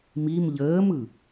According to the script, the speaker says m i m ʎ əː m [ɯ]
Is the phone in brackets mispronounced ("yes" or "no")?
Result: no